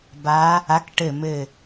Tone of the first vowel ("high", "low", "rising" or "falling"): rising